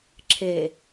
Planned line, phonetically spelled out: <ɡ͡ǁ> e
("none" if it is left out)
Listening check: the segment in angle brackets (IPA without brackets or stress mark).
ǁʰ